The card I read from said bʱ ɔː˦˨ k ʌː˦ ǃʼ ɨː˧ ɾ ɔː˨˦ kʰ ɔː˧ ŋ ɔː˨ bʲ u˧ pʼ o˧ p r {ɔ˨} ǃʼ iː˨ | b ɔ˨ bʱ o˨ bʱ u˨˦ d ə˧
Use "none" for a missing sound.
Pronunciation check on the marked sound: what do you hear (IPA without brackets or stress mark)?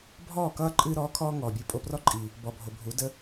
ɔ˦